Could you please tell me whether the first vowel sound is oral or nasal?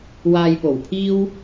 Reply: oral